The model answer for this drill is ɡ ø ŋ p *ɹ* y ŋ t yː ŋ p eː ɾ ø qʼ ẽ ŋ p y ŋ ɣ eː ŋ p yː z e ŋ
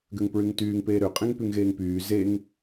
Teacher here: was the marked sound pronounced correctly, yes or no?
yes